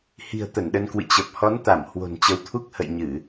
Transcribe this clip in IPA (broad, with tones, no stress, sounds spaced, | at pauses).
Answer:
h i̤˨˩ ə̯ t̪ ə˧˩ n ɗ ə˧ n k w ɨ̰˧˨ t͡ɕ ə˨˩ p̚ h ɔ˨˦ n t̪ a˧˩ m h w o̤˨˩ n t͡ɕ ə˨˦ w t̪ʰ u˦˥ k̚ h ə̰˧˨ j ɲ ɨ˧˩˨